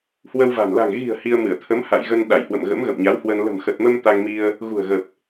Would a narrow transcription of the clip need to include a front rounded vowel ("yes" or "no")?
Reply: no